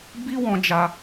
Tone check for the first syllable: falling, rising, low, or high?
high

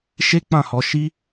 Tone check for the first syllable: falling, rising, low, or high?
high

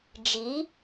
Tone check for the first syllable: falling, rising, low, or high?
rising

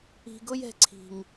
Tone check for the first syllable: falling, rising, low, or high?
low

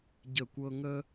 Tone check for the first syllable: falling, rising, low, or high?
falling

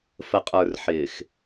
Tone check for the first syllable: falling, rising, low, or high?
low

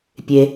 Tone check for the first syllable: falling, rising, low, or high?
low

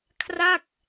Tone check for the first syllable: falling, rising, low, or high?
falling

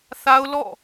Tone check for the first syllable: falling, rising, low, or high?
high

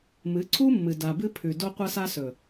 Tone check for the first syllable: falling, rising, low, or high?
rising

